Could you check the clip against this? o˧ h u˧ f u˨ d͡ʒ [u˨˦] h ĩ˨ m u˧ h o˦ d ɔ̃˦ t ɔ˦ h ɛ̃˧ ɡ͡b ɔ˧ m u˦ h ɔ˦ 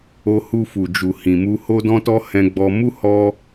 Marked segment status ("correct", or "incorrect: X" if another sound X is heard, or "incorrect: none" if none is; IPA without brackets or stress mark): incorrect: u˨